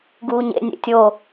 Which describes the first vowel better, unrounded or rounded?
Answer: rounded